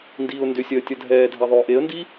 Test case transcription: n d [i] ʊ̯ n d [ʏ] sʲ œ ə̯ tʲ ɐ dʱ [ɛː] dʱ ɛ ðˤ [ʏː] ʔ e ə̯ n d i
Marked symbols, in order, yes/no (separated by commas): no, yes, yes, yes